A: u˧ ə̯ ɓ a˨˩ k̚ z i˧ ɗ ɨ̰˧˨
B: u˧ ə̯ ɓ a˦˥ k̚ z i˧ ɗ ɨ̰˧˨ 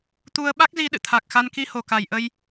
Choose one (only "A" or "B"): B